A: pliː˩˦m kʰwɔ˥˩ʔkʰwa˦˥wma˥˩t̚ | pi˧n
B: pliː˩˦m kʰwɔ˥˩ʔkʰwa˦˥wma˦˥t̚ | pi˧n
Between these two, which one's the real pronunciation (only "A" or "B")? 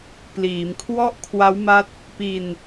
B